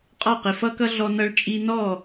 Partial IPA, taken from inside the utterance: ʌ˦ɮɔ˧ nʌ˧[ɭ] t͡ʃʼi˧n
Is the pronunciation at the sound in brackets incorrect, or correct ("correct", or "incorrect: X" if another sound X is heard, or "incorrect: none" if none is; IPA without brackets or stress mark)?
correct